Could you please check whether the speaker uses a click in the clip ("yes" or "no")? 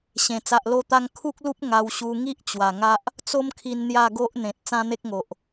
no